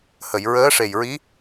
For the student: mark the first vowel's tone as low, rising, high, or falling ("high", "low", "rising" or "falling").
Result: low